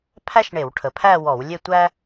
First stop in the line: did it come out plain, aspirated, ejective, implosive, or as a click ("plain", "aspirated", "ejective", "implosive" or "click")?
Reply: aspirated